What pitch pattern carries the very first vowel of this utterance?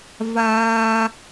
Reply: high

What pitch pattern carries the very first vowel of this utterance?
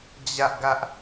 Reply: high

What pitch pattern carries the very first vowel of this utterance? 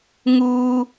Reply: high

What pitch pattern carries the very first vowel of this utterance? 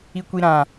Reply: low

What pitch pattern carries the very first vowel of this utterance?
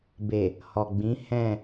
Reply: low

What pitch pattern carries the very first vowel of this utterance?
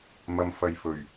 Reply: low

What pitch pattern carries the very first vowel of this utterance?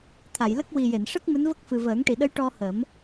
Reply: low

